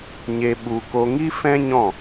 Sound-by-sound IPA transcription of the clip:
ɲ e˧ ɓ u˧ k o˧ ŋ i˦ f ɛ̃˦ ɲ ɔ̃˦˨

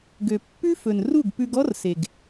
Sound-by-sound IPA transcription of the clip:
ɡ ø˨ pː ʉ˦ f ɵ˨ n r u˦˨ ɡ p ʉ˧ ɡ ɔ˦ r s e˨ ɡ

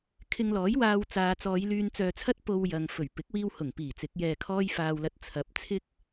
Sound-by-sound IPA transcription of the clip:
kʰ ɪ˧ ŋ l ɔː˨˥ j w aː˧ w t͡s aː˨ t͡s ɔː˨˧ j l yː˧ n t͡s œː˧ t͡sʰ ɐ˥ t̚ p o˧ w j ɐ˨ ŋ f ɵ˨˩ ɥ p ɪ˨˥ k̚ w iː˧ w h ʊ˨˩ ŋ p iː˨˩ t͡s ɪ˨˥ k̚ j ɛː˧ kʰ ɔː˥ j f aː˧ w l ɐ˧ t̚ t͡sʰ ɐ˨˥ p̚ t͡sʰ ɪ˥ k̚

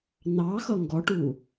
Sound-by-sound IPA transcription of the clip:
n ɑ x ʌ ŋ ɡ ɔ ʈ u

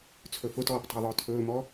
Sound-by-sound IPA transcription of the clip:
t͡sʰ ɵ f ʊ t ɔː p tˤ ə̤ j ðˤ ʊː tʰ ɵː m ɔ

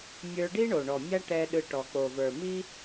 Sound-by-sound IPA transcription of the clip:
mʲ ə˞˧ ɖ i˦ ɳ o˨ ɳ ɔ˨ mʲ a˦ ʈ ɛ˧ ɗ ɯ˧ ʈ ɔ˨ k͡p o˨ v ə˞˨ m i˦

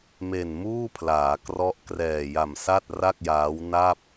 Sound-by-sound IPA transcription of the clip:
m e˨˩ n m uː˥˩ pʰ l aː˩˦ k r ɔ˦˥ ʔ k r ɛː˨˩ j a˨˩ m s a˥˩ t̚ r a˥˩ k̚ j aː˦˥ w n a˥˩ p̚

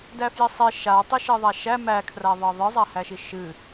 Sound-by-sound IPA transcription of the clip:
d æ f j i sˤ e ʃ a tˤ i ʃ e ðˤ a ʃ æ m æ kʰ r a ðˤ ɜ ðˤ ɨ zˤ a h æ ʃ i ʃ ɨ

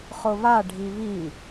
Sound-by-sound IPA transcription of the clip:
χ ʊ β a ɖʱ i β i

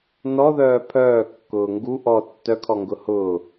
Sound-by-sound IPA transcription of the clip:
n ɔ ð œː pʰ œː kː ʊː ŋ ɡ u ʔ ɔ tː œ kʰ ɔ ŋ ɡ ʊ h ʊ

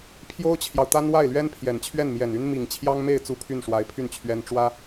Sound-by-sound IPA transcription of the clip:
pʰ j o˥ ʊ̯ t͡ɕʰ j ɑ˨ ʊ̯ t̪ a˥ n w a˥˩ ɪ̯ l ɥ ɛ˥ n pʰ j ɛ˨˩ n t͡ɕʰ ɥ ɛ˥˩ n m j ɛ˨˩ n y˥ n m i˨˩ ŋ t͡ɕʰ j ɑ˥ ŋ m e˥˩ ɪ̯ t͡s u˥ pʰ y˥˩ n ʂ w a˧˥ ɪ̯ pʰ y˥˩ n t͡ɕʰ ɥ ɛ˥ n ʈ͡ʂ w ä˥

